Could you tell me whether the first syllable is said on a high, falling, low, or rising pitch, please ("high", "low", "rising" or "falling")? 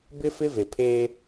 high